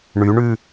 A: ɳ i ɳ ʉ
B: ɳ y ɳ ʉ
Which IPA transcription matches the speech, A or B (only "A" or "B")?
B